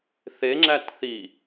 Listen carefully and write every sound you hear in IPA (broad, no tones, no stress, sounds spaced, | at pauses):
θ e ŋ͡ǁ æ t θ i